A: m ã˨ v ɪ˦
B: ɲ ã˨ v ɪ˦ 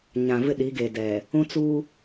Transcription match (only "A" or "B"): B